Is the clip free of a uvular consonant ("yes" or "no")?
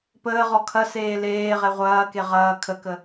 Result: no